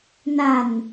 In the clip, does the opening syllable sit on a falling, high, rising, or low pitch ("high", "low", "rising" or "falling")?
low